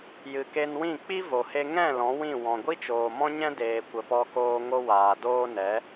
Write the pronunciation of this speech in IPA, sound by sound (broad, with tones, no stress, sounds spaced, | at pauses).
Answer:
j ɨ˨ k e˧ n w ĩ˦˨ k͡p i˦ v o˨ h e˦ ŋ ɛ̃˦˨ l ɔ̃˨˦ w ĩ˦˨ w ɔ̃˨ ɡʷ i˦ t͡ʃ oː˨ m ɔ̃˦ ɲ ɛ̃˦ d eː˨ kʷ ə˨ p ɔ˧ k oː˧ ŋ o˦ w aː˨ d oː˦ n ɛ˨˦